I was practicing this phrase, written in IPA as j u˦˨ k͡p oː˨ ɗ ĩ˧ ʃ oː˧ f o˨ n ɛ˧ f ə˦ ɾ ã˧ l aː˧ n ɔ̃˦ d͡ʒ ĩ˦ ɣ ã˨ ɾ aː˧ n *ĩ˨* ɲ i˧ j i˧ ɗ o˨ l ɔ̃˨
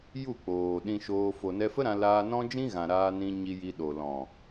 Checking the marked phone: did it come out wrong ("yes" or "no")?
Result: yes